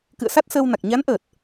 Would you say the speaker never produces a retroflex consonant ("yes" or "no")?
yes